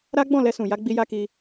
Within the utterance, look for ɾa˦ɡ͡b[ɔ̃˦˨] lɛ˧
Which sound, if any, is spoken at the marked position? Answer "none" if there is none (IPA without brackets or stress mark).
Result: ɔ̃˦˨